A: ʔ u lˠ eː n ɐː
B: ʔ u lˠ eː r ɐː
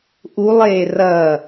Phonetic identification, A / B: B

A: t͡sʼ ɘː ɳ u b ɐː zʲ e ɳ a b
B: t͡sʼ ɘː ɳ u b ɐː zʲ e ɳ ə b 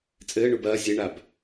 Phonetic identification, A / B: A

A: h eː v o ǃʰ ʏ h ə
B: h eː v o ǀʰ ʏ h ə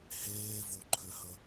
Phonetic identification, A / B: A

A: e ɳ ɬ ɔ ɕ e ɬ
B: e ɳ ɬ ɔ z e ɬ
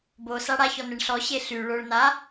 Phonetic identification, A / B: A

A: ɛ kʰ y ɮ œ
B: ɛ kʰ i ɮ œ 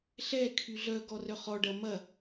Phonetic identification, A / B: A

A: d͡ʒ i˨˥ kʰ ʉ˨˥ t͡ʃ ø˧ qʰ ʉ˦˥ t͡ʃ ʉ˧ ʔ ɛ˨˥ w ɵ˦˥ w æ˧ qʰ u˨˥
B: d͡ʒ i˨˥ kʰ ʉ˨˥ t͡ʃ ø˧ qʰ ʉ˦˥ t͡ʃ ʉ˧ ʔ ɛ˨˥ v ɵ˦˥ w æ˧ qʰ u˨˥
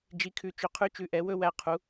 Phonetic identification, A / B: A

